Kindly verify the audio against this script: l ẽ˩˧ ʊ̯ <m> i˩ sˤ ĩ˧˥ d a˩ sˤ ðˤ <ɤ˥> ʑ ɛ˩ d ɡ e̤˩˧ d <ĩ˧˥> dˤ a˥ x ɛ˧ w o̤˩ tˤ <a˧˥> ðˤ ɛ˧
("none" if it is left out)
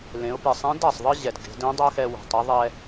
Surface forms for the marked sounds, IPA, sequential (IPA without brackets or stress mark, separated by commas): p, ɯ˥, ẽ˧˥, a˧˥